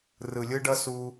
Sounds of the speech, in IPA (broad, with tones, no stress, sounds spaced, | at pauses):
r ɯ˨ lʲ ɯ˦ ɖ ʌ˦ s u˧